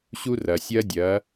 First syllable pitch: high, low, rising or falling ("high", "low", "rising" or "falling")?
high